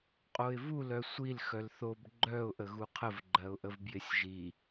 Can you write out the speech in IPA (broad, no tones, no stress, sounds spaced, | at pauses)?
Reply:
qʼ o ɪ̯ v u l œ sʷ i l x œ l θ o b ɡ͡ǃ œ ʊ̯ ʔ ə ɣ u qʰ ə v ɡ͡ǃ ɜ ʊ̯ ʔ ə v b j ɪ sʲ ʒ i